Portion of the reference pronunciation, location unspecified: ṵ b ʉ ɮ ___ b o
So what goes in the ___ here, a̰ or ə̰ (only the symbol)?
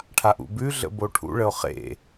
ə̰